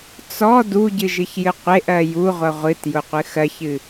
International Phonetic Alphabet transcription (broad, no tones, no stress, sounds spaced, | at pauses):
t͡s ɔ d u ɟ ɨ ʒ ɨ ç j ɨ qʷ e ʔ ɜ j u ʁʷ ʌ ʁʷ ɨ t j ʊ qʷ ɨ x ɜ ç ɨ